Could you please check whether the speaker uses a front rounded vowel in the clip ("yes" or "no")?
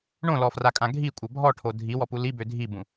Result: yes